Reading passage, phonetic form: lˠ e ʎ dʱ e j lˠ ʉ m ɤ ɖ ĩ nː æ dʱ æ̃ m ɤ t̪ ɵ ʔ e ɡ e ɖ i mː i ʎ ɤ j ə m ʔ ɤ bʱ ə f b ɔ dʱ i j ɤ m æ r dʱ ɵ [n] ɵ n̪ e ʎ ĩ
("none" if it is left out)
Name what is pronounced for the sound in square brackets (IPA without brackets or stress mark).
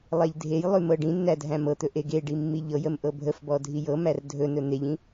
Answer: n